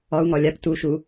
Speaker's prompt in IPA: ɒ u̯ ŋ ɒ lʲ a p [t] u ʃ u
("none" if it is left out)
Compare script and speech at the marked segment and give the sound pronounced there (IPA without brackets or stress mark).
t